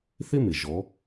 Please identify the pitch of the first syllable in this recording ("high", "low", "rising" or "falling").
high